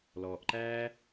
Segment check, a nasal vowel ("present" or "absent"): absent